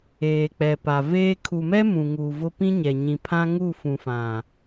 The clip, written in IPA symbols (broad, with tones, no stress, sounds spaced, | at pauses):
eː˨ k͡p ɛ˨ p a˨ v eː˦ kʰ u˨ m ɛ˦ m ũ˨ ŋ uː˨ v ʊ˦ p ĩ˦ ɲ ɛ˨ ɲ ĩ˨ pʰ ã˦ ŋ u˦˨ f ũ˨ f ã˨